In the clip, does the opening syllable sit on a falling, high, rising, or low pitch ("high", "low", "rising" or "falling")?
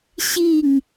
falling